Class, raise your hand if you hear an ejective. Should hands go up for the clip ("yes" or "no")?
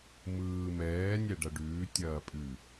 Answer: yes